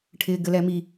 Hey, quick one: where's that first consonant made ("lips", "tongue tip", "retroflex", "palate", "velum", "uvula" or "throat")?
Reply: retroflex